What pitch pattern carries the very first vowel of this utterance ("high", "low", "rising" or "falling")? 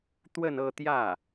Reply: falling